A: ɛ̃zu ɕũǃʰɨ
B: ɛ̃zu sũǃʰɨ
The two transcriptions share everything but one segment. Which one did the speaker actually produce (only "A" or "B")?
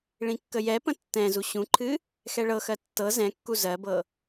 A